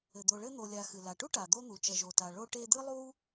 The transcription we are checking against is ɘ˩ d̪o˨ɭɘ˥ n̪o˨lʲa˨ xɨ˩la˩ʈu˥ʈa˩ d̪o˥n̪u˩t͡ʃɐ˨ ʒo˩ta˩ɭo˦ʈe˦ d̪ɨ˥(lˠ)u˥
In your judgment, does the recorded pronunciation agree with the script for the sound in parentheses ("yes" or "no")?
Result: yes